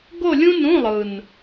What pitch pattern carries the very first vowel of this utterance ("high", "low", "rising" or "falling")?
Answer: falling